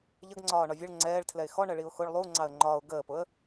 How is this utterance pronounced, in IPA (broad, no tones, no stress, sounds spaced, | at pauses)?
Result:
ʎ ə ɡ ŋ͡ǀ ɒː ɳ ɒ vʲ ə ɭ ŋ͡ǀ ɛː ɭ tʰ l ɛ ɪ̯ x ɔ ɳ ɜ ɭ i ʊ̯ x ʊ ɭ lˠ u ŋ͡ǀ ɑ ə̯ ŋ͡ǃ ɒː ʊ̯ ɡ əː p ʊ ə̯